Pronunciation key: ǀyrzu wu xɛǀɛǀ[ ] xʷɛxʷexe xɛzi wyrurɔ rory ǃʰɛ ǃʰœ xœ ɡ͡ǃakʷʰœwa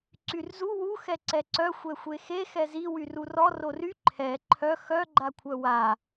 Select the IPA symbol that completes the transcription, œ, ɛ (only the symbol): œ